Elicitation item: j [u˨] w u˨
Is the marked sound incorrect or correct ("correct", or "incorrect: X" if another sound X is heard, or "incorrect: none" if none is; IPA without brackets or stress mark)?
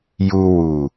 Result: correct